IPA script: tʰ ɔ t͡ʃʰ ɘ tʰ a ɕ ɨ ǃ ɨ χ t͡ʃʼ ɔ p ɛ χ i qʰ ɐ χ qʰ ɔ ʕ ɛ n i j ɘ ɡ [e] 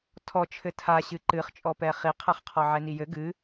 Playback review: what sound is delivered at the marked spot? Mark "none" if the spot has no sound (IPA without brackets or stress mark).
ɨ